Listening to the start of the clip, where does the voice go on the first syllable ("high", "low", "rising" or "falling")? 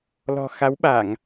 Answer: low